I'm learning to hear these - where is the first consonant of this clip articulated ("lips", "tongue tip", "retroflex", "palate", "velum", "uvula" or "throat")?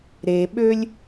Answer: tongue tip